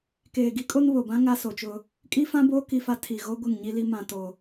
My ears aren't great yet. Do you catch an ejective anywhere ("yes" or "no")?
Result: yes